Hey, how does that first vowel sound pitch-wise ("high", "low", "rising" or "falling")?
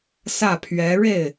falling